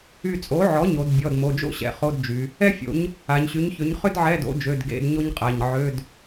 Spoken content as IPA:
y˧˩ t͡sʼ o˩˥ ʕ ɔ˩˥ ɲ o˩˧ d bʲ ɔ˩˧˩ d m o˩˧˩ d͡ʒ o̰˥ ɕ ɛ̰˧˩ χ o˧˥˧ d d͡ʒ y˩˧ | ɛ˥ fʲ o̰˩˥ ɲ | a˩˧ ɲ ɕ y˩˥ ɲ ç ø˩˥ ɲ χ ʏ˥ d ʕ ɛ˧˥˧ d o̰˩˥ d͡ʒ ø˩˧˩ d ɡ ḛ˧˥˧ d ɲ o˥ ɲ qʼ a˩˧˩ ɲ ʕ ø˧˥˧ d

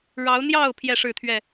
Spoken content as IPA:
ɻ ɑ˨˦ ʊ̯ n̪ j ɑ˥˨ ʊ̯ pʰ j ɛ˥˨ ʂ ɻ̩˥˨ t̪ʰ ɥ ɛ˥˨

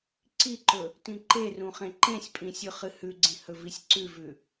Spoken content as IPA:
ǀ i ǃ ɵ | t ĩ ǃ e r ũ χ ẽ ǃ ẽ sʲ pʼ ĩ sʲ ʉ χ ɨ h ʉ ɡ͡ǀ ĩ h ɵ v i sʲ ǀ ʉ v ʉ

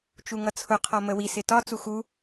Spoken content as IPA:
t͡ʃ u ŋ ʌ t͡sʰ ʊ qʰ ɔ m ə w i s ɪ t ɒ t͡s u x u

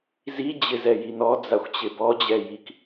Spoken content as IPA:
z i d͡ʑ ɪ z ɛ j i n ɔ d͡z a xʷ t͡ɕ ɪ b ɔ d͡ʑ ɛ j i k

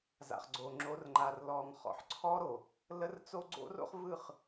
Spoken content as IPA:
z a̰˨ χ ɡ͡ǀ o˨ ŋ͡ǁ o˨˦ r ŋ͡ǃ a˨ r l ɔ˨ ŋ χ ɔ̰˨ ħ ǀʰ ɔ˦ ɾ o˨ | l ə˦ r t͡s o˦ ɡ͡ǀ o̰˦ r o̰˦ χ v ɯ˦˨ χ

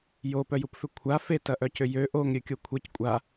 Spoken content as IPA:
j o p œ j u p f ʏ kʷʰ a f e t ɐ ʔ œ c ʏ j ø ʔ o ŋ ɾʲ ø kʲ o kʷʰ e c kʷʼ a

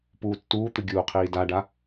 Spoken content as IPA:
p uː tː uː t̪ ɨ ɡʲ uː qʰ iː d a ɖ a

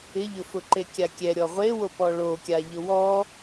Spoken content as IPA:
ɪ ʎ ʊ f ʊ ǃ e kʲ a kʲ ɛ ɾʲ ɔ ʁʷ e w o p ɔ ɭ o kʲ a ʎ ʊ w ɔ

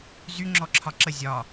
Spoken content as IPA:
z y ŋ͡ǁ ɔ ǁʰ ɒ ǁ ə zʲ ɒ

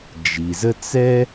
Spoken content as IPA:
d͡ʒ i˩ z ə˦ t͡s ɛ˥

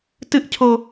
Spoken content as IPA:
t ɨ ʔ cʰ o

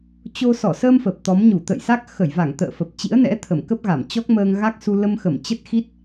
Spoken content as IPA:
t͡ɕ o˧ s ɔ˧˩ s əː˧ m f ə˨˩ p̚ t̪ ɔ˨˦ m ɲ u˧˩ t̪ ə̰˧˨ j s a˦˥ k̚ x ə˧˩ j v a˧˩ ŋ t̪ ə̰ː˧˨ f ə˨˩ p̚ t͡ɕ ḭ˧˥ ə̯ n ɛ̰˧˥ t̪ʰ ə˧˩ m k ə˦˥ p̚ ɣ a˧˩ m t͡ɕ ɔ˦˥ k̚ m əː˧ ŋ ɣ a˦˥ k̚ s u˧ l ə˧ m x ə˧˩ m t͡ɕ ə˦˥ t̚ x i˦˥ t̚

